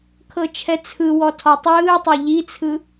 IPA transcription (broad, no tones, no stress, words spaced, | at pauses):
kʰɤt͡ʃʰɛt͡sʰɯwɔ tʰɔtˤɯːtˤo ʎit͡sʰɯ